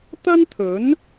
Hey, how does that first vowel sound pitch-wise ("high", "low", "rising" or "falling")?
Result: high